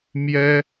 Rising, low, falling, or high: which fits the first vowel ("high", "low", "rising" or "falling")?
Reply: high